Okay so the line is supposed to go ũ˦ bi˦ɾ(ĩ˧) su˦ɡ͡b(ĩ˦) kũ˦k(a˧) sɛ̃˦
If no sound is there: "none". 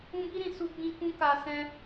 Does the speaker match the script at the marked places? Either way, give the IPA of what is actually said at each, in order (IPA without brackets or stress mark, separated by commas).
ĩ˧, ĩ˦, a˧